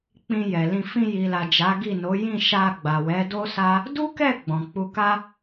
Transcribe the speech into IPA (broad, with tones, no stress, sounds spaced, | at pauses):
k͡p ĩ˧ j ɛ˨ l ĩ˧ f ĩ˧ j i˨ l a˨ d͡ʒ a˨˦ ɡ i˦˨ n o˨˦ j ĩ˦˨ ʃ a˧ ɡ͡b a˨ w ɛ˨˦ d o˦ s a˦ | d u˦ k ɛ˦˨ ɡ͡b ɔ̃˨ k͡p u˧ k a˦